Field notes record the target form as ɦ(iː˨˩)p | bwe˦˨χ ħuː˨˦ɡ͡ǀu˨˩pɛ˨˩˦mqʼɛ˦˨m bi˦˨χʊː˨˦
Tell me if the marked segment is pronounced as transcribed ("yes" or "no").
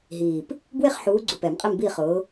yes